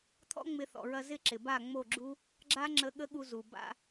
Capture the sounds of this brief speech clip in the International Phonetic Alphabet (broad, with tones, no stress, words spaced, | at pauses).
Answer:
t̪ʰɔ̰˦ŋ͡mɪ˧θɔ̰˨ɹɐ˧ zɪ˦ǁɪ˨ ba˦˨ŋ͡mo˦˨ɡ͡ǁu˦ | ɡ͡ǁa˦ ŋ͡ǁə˧ ɠə˦ɠu˧ zu˨ ba̰˧